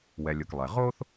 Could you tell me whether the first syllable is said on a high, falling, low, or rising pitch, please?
low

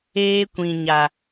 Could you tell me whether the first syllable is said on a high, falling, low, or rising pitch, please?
high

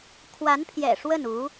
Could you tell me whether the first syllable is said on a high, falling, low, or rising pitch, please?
rising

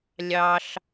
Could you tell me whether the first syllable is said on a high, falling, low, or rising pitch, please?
high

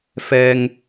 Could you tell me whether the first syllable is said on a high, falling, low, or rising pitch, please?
low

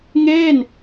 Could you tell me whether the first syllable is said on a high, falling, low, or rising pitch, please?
falling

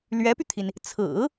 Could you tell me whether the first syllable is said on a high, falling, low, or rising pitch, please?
rising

